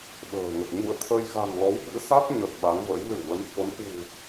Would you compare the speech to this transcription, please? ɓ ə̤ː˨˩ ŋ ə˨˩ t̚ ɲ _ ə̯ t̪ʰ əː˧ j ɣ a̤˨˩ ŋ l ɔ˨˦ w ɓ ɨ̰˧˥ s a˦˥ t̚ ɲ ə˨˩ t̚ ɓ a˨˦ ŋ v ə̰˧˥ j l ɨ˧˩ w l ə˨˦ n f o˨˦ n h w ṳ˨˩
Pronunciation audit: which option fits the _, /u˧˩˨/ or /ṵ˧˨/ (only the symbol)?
ṵ˧˨